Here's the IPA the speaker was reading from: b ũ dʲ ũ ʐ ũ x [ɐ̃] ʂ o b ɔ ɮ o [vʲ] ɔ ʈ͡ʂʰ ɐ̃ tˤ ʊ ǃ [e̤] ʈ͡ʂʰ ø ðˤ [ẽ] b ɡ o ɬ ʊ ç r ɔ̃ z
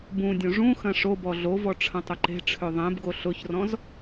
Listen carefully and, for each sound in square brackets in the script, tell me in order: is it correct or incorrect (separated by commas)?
correct, incorrect, correct, correct